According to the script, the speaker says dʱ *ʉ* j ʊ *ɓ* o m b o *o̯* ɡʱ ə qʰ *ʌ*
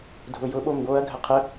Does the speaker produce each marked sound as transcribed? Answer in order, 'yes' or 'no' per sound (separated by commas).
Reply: no, yes, no, no